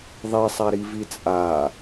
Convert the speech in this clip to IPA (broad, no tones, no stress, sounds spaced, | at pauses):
ðˤ e sˤ a ɾ i v i t͡sʼ a